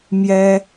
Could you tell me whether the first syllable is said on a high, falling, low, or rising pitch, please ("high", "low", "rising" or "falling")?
high